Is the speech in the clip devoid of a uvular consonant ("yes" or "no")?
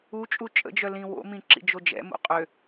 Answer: no